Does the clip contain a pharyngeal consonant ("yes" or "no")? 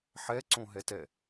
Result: yes